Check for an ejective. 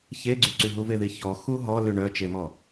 absent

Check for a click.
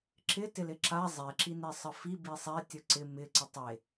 present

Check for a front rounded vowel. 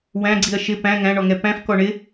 absent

